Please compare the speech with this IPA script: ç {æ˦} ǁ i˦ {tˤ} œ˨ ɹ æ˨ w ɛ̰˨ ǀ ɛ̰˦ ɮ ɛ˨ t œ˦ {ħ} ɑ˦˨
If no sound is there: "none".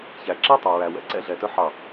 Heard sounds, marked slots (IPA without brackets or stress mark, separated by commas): æ˨, tˤ, ħ